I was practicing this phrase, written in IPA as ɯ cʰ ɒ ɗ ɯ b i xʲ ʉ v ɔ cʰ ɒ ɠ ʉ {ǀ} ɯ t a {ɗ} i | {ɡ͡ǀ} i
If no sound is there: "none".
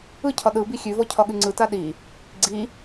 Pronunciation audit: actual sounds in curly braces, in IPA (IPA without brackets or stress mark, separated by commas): ŋ͡ǀ, ɗ, ɡ͡ǀ